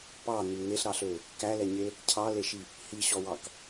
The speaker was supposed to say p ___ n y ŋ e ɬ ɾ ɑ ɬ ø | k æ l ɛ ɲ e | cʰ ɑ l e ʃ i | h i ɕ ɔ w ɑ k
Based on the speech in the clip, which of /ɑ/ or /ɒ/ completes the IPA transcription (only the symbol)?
ɑ